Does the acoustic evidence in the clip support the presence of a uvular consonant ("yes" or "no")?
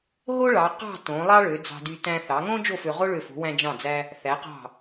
yes